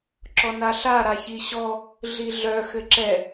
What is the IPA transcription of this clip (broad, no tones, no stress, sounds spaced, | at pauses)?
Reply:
ǁ ɔ n a ɬ a ɾ a ç i ɕ ɔ | ɮ i ɮ œ x ɘ ǁ ɛ